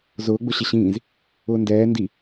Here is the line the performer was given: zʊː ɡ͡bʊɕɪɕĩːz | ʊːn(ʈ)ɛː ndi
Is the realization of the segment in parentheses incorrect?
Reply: yes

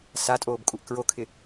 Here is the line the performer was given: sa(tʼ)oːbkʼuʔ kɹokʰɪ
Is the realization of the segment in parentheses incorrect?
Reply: no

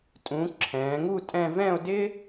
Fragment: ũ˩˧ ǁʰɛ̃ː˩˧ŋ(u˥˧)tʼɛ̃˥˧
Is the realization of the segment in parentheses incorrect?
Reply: no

